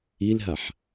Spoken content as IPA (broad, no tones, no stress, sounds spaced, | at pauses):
i l ɦ a ħ